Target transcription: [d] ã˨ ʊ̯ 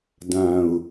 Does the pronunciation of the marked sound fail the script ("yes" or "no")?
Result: no